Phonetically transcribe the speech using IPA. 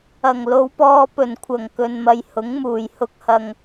ɐ˨˩ ŋ l o˨˧ w p ɔː˧ p ɵ˨˩ n kʷʰ ɐ˨˩ ŋ k ɵ˨ n m ɐ˨ j h ʊ˨˥ ŋ m uː˨˩ j h ʊ˨ k̚ h ɐ˨ ŋ

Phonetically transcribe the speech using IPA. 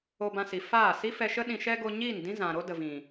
o˧ b ã˧ s i˨ f aː˦˨ s i˦ f ɛ˧ ʃ ə˦ ɗ ĩ˧ ʃ ɛ˦ ɡ o˧ ɲ iː˦˨ n d ĩ˦ z ã˨ ɾ o˦ d ə˨ v ĩ˨

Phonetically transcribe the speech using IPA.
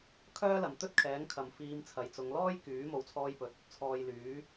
kʰ œː˥ l ɐ˨ m t̪ ɵ˥ t̚ kʰ ɛː˨˥ ŋ kʰ ɐ˨ m f iː˧ m t͡sʰ ɐ˨ j t͡s ʊ˨˧ ŋ l ɔː˥ j k yː˨˥ m o˨ w t͡sʰ ɔː˧ j p ɵ˨˥ t̚ | t͡sʰ ɔː˨ j l yː˨˥

